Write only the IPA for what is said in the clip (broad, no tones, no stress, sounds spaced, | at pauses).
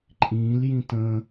ǃʼ ĩ l j ĩ t ə̃